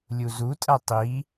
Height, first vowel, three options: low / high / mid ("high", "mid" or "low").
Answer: high